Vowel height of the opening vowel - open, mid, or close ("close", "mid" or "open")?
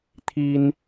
close